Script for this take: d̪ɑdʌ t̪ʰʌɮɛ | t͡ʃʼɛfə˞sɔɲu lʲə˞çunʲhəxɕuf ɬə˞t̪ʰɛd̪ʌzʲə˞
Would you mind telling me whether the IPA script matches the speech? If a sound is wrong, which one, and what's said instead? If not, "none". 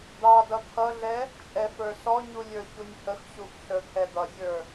none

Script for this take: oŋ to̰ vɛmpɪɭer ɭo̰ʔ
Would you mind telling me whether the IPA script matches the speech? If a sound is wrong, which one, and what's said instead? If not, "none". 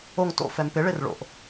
v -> f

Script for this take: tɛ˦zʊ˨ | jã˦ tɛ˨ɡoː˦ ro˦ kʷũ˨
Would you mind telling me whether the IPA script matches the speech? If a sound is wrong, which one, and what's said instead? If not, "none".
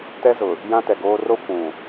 none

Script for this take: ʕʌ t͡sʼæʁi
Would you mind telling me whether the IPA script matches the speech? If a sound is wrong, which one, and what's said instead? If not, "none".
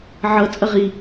æ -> ɐ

